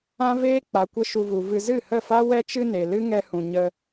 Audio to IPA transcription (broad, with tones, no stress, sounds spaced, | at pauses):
ã˦ v eː˦ k͡p a˨ kʷ ə˧ ʃ u˧ v u˨ v ɨ˧ z ɨ˦˨ h ə˦˨ f a˦ w ɛ˧ t͡ʃ ɨ˧ n e˨ l ɨ˦ ŋ ɛ˧ h ũ˨ ɲ ə˧